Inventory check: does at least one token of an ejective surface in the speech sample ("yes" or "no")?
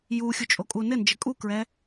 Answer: yes